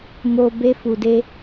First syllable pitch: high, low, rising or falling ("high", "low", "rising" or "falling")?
low